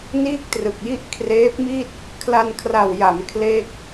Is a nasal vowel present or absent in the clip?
absent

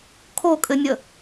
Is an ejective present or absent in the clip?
present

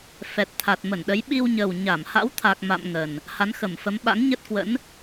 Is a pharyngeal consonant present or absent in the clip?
absent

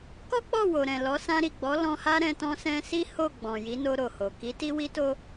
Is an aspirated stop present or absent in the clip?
absent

